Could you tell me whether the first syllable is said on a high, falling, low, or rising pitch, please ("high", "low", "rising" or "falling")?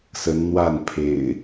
rising